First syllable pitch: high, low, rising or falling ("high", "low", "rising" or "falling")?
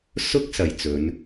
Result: high